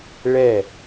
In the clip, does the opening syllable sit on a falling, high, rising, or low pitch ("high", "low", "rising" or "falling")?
falling